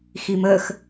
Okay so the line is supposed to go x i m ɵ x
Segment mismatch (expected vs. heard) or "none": ɵ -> ə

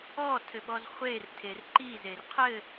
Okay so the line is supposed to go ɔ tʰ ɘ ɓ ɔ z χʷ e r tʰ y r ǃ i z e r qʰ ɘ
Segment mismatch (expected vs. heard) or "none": y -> e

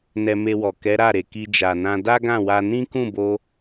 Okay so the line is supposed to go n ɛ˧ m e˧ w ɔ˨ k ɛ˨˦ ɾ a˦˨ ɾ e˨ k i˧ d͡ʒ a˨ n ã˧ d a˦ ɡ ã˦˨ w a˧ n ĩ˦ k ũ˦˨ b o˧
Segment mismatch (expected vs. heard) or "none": none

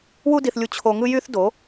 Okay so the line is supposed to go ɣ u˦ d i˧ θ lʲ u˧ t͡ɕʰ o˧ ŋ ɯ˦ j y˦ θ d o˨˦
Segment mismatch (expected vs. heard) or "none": ɣ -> w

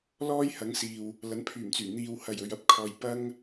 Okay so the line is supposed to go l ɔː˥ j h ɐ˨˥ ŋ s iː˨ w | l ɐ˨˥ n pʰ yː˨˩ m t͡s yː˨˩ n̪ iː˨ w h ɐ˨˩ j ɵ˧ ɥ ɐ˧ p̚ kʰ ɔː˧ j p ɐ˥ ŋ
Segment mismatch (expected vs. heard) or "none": none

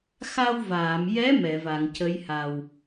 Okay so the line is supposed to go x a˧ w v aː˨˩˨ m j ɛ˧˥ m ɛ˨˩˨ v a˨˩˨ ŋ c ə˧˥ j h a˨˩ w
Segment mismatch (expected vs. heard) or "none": none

